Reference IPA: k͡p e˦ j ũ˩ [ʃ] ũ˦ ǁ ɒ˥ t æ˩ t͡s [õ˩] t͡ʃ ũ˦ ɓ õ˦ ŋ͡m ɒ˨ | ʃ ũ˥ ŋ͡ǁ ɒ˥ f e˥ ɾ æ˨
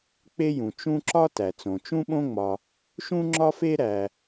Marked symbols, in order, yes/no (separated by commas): no, yes